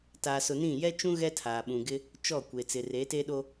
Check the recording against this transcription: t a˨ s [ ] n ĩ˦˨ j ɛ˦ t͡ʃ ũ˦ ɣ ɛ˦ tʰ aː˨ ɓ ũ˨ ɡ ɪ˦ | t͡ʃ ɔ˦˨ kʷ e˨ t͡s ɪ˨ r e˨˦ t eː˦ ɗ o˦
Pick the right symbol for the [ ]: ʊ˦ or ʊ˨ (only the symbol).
ʊ˨